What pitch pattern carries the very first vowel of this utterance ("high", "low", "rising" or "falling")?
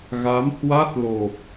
rising